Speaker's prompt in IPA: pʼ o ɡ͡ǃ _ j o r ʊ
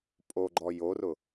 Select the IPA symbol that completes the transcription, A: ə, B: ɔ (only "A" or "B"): B